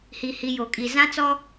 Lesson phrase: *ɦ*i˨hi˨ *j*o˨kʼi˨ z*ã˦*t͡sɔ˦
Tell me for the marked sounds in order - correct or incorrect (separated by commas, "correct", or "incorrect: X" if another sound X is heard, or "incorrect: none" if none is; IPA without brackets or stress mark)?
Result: incorrect: h, correct, correct